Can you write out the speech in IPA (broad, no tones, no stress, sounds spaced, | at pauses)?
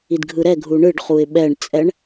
i d ɡʱ ɯ ɾ ɛ ɡʱ u ɳ ɯ ɖ χ u ɪ̯ ɓ ɛ ɳ t͡sʼ ɛ ɳ